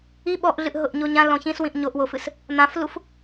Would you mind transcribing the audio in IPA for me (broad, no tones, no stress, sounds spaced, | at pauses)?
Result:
i ɓ ɔ ʔ ɮ ɨ ʔ ɦ ʊ ʔ ɲ o ɲ ã l ɔ̃ ç ĩ s w ĩ ʔ ɲ o ʔ w o f ɨ s | n̪ ã f l u f